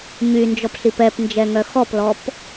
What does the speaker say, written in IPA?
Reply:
ɲ y n d͡ʒ ɔ p ɬ i p ɛ p n d͡ʒ ɛ ŋ œ x ɔ p l ɔ p

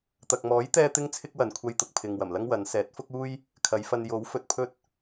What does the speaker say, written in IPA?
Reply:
t̪ ɐ˨ k̚ m ɔː˨˥ j t̪ ɛː˥ t̪ ɪ˥ ŋ t͡sʰ ɪ˥ k̚ w ɐ˨ n kʷʰ ɐ˧ j t̪ ʊ˨ k̚ pʰ ɪ˨ ŋ w ɐ˨˩ m l ɐ˥ ŋ w ɐ˨˧ n s ɛː˨˥ t̚ f ʊ˥ k̚ uː˥ j | kʰ ɐ˨˧ j f ɐ˧ n j o˨˥ w f ɵ˨ t̚ pʰ ɵ˥ t̚

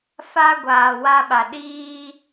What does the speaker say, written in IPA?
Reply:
f a˦ ɡʷ aː˨ w a˦ ɓ a˨ ɗ iː˦

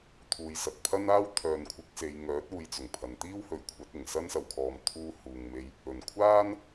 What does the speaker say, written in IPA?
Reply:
t̪ʰ uː˨ j s ɐ˨ t̚ pʰ ɐ˥ n aː˥ w t̪ʰ œː˨ n kʷʰ ɪ˨˥ k̚ s e˨˧ j ŋ œː˨˥ t̚ uː˨˧ j t͡s ʊ˨˩ ŋ pʰ ɐ˨ n t̪ iː˥ w h ɵ˨˥ ɥ kʷʰ ɐ˨˥ t̚ ɪ˨˩ ŋ s ɐ˥ n s ɐ˨ w kʰ ɔː˨ m t̪ʰ uː˧ h uː˨ ŋ m e˧ j | ɵ˨˩ n kʷʰ aː˥ n

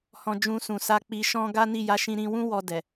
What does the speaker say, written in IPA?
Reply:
h ɔ̃˧ d͡ʒ ũ˧ s ũ˨ s a˧ k͡p i˧ ʃ ɔ̃˦ ɡ a˦ n i˦˨ j a˨˦ ʃ ĩ˧ ɾ ĩ˧ w ũ˦ w ɔ˧ d ɛ˨

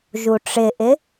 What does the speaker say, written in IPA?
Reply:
ʒ u ʈ͡ʂ ɪ ʔ ɪ

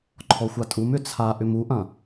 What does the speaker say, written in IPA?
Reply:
ǃʰ ɔ xʷ a tʼ u m ʏ t͡sʰ a ʔ ʏ m u ʔ ɐ̃

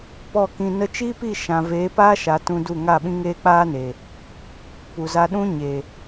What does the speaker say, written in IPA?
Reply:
p ɔ˦˨ k ĩ˧ n ə˧ t͡ʃ iː˦ p i˦˨ ʃ ã˨ v eː˨˦ p aː˦ ʃ a˨ t ũ˧ d u˦˨ ŋ a˦˨ ɓ ĩ˦ ŋ eː˦ k͡p aː˦ n e˨ | p u˨ z a˧ ɗ ũ˦ ɲ eː˨

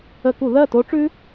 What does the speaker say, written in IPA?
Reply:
ə˧˩˧ k u˧˩˧ ð ɜ˥˨ t o˦˥ ʈ͡ʂ ʉ˦˥

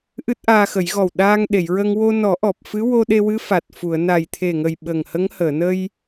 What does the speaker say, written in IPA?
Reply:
ʔ ɨ˦˥ t̚ ʔ aː˧ x ə˨˩˦ j ɣ ɔ˨˩ w ɗ aː˧ ŋ ɗ e˨˩˨ j ɹ ə˧ ŋ w o˧ n ɔ˨˩˦ ʔ ɔ˨˩ p̚ f ɨ˧˥ w o˧ ɗ e˧ w ɨ˧˥ f a˨˩ t̚ f u˨˩˨ ə̯ n a˨˩ j t̪ʰ e˨˩ ŋ ə˨˩ j ɓ ə˨˩ ŋ h ə˧˥ ŋ h əː˨˩˨ n ə˧ j

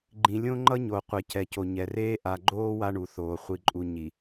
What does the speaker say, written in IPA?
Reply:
ɡ͡ǃ ĩ˨ lʲ õ˦ ŋ͡ǃ ʌ˦ ɲ o˨ qʷ ɛ˨ c ɛ˨ c o˨ ɲ ɛ˨ r eː˦ ʔ a˨ ɡ͡ǃ oː˦ w a˦ ɳ u˨ θ oː˨ χʷ i˨ ǃʼ u˨ ɲ i˨

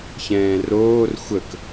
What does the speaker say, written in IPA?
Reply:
ç ɛ̃ː r oː r xʷ ə k

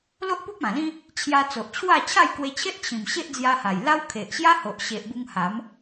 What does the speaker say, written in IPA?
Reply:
l o˦ ʔ p u˦ p̚ ã˨˩ l ĩ˦ | t͡ɕʰ j a˧ t͡s o˨ ʔ t͡ɕʰ w a˥˧ t͡ɕʰ a˥˧ j k w e˧ t͡ɕʰ e˦ ʔ t͡ɕʰ ĩ˨˩ m ɕ e˦ ʔ d͡z j a˧ h a˨˩ j l a˦ w kʰ e˨ ʔ ɕ j a˦ h o˨ ʔ ɕ e˨ ʔ b u˧ ŋ h a˨˦ m

